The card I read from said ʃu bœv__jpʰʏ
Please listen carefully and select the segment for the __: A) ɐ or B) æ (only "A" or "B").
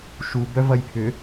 A